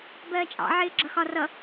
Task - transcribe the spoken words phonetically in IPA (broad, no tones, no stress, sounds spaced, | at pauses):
b ɜː t͡ʃʼ ɑ̰ ʕ ɪː ɡ͡ǁ ʌ x ɒ r ʌ